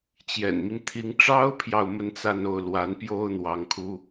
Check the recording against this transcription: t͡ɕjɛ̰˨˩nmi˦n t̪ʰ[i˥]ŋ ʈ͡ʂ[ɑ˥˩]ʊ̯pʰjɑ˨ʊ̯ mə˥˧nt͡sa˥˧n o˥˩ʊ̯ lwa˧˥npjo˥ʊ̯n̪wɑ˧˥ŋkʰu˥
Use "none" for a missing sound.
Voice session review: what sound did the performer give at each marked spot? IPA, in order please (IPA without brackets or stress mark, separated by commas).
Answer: i˧˥, ɑ˥